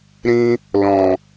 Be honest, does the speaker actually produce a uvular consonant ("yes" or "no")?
no